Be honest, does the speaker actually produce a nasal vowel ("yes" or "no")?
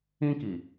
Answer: yes